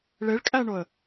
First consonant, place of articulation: retroflex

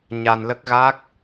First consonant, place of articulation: palatal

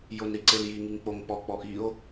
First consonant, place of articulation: palatal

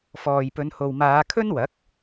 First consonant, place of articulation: labial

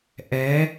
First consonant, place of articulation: glottal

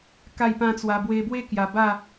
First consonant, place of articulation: velar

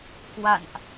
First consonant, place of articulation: velar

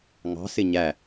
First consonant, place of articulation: velar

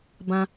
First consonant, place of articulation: labial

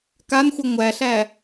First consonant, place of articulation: velar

